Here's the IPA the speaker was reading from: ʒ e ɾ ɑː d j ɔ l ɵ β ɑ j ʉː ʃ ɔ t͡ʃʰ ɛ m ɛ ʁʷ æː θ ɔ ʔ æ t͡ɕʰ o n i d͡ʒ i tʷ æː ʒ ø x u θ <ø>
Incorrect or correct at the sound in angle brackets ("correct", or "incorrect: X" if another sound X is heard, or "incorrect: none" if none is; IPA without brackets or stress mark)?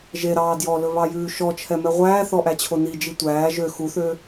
correct